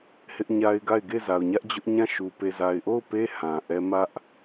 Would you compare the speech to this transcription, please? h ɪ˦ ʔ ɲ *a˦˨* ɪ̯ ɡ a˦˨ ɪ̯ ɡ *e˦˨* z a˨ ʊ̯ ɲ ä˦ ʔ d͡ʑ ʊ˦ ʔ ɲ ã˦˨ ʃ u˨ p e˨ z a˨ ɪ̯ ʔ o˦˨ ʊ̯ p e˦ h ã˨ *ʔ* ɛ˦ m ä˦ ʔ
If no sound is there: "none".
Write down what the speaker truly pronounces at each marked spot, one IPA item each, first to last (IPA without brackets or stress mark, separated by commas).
a˦, e˦˨, ʔ